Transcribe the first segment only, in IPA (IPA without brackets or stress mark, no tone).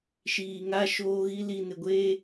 ʃ